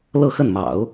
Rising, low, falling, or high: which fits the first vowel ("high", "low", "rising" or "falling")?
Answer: falling